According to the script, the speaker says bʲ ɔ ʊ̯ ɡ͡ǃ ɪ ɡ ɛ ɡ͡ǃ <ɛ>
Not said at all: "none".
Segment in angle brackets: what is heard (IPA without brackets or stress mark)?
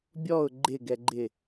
ɪ